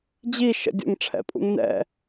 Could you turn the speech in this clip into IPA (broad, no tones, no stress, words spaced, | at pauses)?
d͡ʑi ʃə̰ dʲə̰ŋ ʈ͡ʂʰɛ̰pʼṵŋnɛ̰